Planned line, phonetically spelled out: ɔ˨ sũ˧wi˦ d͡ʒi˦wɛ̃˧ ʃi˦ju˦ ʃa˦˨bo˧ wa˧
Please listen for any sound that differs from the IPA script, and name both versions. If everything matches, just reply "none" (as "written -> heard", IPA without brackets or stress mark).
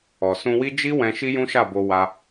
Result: u˦ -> ũ˦